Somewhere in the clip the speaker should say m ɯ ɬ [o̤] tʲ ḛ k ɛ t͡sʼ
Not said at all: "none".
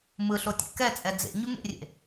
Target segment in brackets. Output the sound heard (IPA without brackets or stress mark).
o